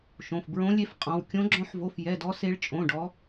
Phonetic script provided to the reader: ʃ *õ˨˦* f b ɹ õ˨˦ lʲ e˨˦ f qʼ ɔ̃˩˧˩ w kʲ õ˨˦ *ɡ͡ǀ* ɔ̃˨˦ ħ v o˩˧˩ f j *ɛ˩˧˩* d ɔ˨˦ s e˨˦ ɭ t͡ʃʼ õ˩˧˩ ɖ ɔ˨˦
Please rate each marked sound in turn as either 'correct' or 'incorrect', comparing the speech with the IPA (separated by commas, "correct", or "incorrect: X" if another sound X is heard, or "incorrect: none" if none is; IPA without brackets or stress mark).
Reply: incorrect: õ˩˧˩, incorrect: ɡ͡ǁ, correct